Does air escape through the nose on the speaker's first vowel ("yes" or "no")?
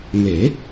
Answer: no